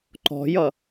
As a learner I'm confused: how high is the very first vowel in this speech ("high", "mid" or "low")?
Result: mid